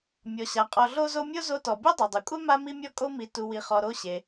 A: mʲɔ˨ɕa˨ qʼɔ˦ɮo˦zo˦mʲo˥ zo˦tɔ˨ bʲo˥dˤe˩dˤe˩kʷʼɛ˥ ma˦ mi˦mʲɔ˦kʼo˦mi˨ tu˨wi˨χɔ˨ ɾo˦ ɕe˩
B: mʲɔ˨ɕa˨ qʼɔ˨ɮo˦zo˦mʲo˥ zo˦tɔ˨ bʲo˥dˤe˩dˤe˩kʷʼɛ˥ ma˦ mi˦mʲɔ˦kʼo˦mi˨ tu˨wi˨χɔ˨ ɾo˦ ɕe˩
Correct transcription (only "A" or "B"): B